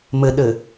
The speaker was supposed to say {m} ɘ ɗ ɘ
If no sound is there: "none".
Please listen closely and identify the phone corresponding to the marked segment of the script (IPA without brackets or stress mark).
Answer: m